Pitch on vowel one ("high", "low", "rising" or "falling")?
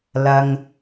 low